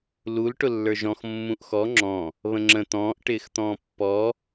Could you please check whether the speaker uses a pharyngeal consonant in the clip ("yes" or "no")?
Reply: no